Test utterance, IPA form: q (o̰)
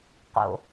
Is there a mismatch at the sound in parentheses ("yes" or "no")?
no